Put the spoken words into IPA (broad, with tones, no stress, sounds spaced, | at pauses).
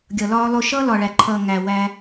ɡʲ ʌ˨ l ɒː˦ lˠ ʊ˦ ʃ ʌː˦ l ɒ˨ ɭ æ˨ ǃʰ ʌː˨ ŋ æ˨ w æ˦